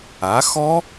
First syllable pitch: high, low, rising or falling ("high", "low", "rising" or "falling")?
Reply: rising